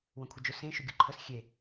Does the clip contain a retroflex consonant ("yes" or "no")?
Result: no